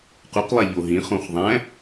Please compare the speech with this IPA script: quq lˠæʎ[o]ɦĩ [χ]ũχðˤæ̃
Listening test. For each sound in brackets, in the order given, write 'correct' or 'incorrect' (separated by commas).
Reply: correct, correct